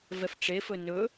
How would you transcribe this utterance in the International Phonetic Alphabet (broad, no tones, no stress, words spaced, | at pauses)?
vɛfʈ͡ʂe fɵnɵ